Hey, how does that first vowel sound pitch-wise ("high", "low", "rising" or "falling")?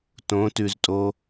rising